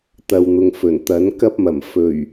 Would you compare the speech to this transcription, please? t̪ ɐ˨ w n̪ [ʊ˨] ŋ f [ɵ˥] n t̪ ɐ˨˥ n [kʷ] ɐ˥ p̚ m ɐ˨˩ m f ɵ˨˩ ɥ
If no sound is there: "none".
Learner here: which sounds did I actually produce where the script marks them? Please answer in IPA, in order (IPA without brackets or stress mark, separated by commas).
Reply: ʊ˨, ɵ˨˩, k